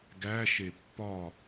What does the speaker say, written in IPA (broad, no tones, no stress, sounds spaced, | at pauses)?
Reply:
ɡ æ ʃ e pː ɒ